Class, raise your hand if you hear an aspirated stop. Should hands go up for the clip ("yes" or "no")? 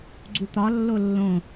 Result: no